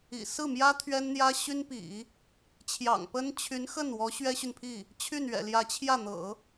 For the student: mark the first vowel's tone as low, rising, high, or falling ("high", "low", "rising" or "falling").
low